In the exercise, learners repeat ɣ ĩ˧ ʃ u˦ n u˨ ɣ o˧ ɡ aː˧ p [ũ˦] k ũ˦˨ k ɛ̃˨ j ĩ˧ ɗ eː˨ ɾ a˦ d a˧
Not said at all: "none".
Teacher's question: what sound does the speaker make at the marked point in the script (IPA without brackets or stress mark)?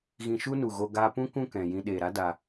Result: ũ˦